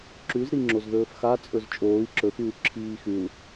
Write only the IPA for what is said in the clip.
ǁ ʉ z ɾ i ŋ͡ǁ o z ð ɵː f x a t͡sʼ ɵ z t͡ʃʼ oː i̯ ǁ ɵ x ʉː ǁʰ iː x ʉ u̯

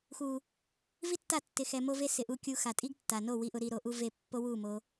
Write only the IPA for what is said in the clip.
x u˨ | v i˦ tː a˦˨ tː ɪ˧ x ɛ˧ m o˦ v e˦ s ɪ˨ ʔ u˧ kʲ u˧ x a˨ tʼ i˦ ɡ tː a˨ n o˦˨ w i˧ ʔ ʊ˧ ɾ i˧ ɾ o˧ ʔ u˦ v e˦˨ pː o˦ w u˦˨ m o˧

